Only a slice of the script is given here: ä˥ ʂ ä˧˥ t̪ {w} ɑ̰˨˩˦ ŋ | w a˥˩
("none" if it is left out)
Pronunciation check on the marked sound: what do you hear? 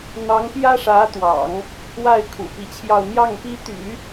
w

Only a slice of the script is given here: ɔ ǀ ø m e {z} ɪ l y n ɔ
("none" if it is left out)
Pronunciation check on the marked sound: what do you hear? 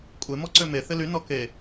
θ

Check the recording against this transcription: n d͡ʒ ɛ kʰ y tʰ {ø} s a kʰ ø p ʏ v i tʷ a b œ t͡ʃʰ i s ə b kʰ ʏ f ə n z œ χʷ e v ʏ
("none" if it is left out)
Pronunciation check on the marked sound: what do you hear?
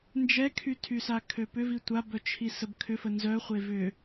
y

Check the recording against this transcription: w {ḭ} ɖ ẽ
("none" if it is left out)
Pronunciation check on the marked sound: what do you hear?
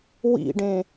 ḭ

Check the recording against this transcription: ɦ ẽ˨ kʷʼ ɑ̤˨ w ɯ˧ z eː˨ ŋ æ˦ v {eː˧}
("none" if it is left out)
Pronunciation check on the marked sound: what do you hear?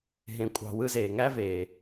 eː˨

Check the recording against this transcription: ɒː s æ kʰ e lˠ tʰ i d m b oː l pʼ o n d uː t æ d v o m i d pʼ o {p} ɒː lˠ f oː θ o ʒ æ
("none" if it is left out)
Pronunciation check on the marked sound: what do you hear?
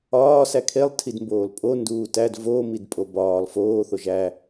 b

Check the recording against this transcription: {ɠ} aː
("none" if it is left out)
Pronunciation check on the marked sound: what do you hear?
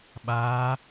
ɓ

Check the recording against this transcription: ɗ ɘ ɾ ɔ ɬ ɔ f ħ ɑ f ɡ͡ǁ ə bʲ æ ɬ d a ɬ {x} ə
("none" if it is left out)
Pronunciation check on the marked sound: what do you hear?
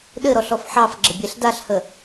h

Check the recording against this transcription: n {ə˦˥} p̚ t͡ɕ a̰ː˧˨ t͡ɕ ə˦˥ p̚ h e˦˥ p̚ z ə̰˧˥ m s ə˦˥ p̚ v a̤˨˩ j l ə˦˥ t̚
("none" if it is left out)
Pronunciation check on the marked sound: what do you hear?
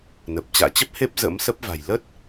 ə˨˩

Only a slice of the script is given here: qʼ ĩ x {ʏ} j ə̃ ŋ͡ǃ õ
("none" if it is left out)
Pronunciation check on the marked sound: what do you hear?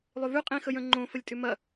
ə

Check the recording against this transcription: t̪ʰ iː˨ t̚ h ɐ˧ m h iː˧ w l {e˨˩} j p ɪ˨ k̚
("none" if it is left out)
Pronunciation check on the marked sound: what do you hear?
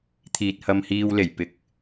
e˨˩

